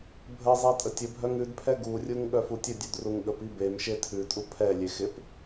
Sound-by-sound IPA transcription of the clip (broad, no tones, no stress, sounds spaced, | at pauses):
bʱ ə zˤ ɛ tʼ ə tʲ ə bʱ œ ŋ ʉ d pʰ ɛ ɡ u rʲ u ŋ ɠ œ f u tʲ ə dʲ ʉ d r u ŋ ɠ ə p i b e m ʃ e tʰ ʉ tʼ u pʰ ɛ lʲ e x ɪ p